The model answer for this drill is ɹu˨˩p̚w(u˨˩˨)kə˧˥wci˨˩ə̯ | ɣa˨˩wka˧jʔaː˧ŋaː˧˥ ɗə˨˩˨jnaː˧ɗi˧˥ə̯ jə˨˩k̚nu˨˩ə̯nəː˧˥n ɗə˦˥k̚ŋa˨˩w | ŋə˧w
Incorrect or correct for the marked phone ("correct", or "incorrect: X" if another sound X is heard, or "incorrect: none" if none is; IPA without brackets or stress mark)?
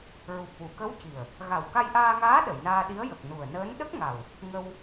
correct